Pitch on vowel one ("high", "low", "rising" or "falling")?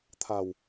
low